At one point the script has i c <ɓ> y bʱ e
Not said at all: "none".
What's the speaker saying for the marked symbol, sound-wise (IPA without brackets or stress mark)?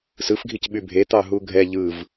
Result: ɓ